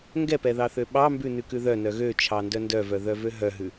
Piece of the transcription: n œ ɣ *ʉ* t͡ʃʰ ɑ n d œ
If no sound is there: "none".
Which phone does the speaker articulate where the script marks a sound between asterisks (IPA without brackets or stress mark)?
ø